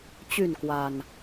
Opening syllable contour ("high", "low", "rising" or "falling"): falling